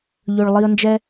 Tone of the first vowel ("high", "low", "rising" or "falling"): low